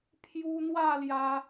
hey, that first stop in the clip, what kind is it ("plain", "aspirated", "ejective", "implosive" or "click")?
aspirated